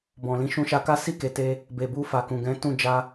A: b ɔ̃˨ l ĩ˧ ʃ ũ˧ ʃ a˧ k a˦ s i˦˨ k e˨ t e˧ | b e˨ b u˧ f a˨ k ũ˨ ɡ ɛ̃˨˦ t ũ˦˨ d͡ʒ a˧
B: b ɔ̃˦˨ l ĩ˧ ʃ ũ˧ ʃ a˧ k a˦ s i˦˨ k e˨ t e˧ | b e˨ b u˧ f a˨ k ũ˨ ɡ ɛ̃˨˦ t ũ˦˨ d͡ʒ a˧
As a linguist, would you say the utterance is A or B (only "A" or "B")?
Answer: A